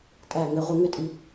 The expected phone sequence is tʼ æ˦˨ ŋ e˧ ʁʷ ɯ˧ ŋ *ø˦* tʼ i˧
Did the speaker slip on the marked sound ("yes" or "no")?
no